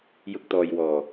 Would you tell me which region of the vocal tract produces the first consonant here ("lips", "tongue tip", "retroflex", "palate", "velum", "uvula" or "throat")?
palate